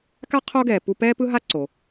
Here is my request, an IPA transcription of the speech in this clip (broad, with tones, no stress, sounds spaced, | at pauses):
k a˥ qʰ o˥ ɡ ɛː˨ p u˦ p ɛː˥ p ɯ˥ ɦ a˥ ǀ o˨